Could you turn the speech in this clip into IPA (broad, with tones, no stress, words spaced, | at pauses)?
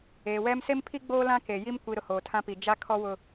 eː˨wɛ˦m se˦mpʰi˦ ɡ͡boː˦lã˦ke˨ ji˦m kʷi˨ ɾʊ˨hoː˨tʰã˦pi˨ d͡ʒa˦kʰɔ˦wʊ˦